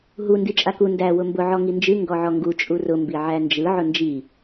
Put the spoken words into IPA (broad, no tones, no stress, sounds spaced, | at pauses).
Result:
ɦ u n d i t͡ʃʼ a k u n d æ w ʊ m b ʊ ʕ ɔ ŋ i n d͡ʒ ɨ ŋ ɡ ɔ ʕ ɔ ŋ ɡ u t͡ʃʼ u r ʊ m b i ʕ æ n d͡ʒ ɯ ʕ ʊ n d͡ʒ i